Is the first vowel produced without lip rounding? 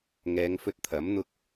yes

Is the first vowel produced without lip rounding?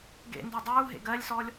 yes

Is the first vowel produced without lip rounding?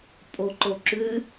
no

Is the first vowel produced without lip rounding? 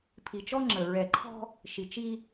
yes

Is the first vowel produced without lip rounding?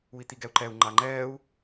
no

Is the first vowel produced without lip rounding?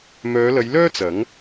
no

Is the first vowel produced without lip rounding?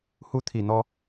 no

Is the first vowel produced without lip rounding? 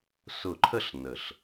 no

